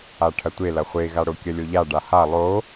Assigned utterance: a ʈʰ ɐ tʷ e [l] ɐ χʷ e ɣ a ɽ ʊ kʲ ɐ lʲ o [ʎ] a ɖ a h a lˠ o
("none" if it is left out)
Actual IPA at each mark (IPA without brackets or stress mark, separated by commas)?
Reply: l, ʎ